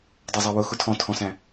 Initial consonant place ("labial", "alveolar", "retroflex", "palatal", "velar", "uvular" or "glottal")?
alveolar